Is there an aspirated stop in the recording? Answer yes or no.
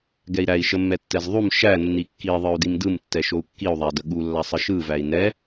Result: no